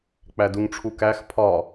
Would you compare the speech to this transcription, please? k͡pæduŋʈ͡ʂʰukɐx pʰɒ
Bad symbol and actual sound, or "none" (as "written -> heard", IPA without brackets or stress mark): ɐ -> æ